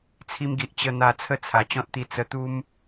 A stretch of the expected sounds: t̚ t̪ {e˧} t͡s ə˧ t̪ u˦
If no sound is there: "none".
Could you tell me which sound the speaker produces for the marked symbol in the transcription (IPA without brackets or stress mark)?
i˧